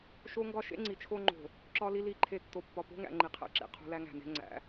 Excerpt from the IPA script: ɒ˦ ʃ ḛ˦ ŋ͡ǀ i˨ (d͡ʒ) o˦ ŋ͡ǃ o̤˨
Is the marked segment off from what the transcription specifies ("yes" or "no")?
yes